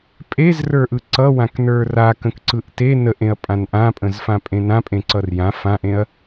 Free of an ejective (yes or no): no